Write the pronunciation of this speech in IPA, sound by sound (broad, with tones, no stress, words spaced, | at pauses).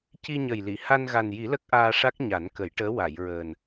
ci˧ɲə˨˩jli˨˩˨ ha˧nɣa˨˩nji˨˩˦ lə˦˥k̚ʔaː˧ʂa˦˥k̚ ɲa˨˩˦nkə˨˩˦jʈəː˧˥ wa˨˩˨jɹəː˨˩n